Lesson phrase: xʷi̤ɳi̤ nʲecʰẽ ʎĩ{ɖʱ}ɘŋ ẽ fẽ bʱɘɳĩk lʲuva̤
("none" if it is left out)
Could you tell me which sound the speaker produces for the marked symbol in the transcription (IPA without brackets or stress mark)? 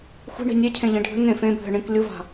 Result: ɖʱ